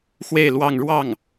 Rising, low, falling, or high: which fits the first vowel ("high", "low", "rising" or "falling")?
falling